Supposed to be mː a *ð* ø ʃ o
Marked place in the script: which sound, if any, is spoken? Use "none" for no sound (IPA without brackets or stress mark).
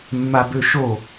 b